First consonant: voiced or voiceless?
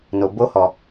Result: voiced